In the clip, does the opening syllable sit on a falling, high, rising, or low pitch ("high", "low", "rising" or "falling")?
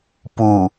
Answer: low